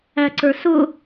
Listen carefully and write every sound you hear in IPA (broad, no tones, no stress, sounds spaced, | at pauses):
æ ǀ ə˞ s ʊ